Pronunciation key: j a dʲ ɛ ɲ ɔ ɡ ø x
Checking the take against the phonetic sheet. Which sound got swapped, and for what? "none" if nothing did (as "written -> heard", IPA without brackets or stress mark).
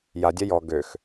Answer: ɲ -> j